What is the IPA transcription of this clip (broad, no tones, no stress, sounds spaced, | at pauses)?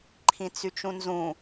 ǃʰ ĩ t͡s y t͡ʃ ũ n z ũ